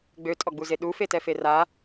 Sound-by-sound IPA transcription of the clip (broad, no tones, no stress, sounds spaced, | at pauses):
ɡ͡b ø tʼ ɔ ɡ͡b u z e ɗ u f e t ɛ f e r a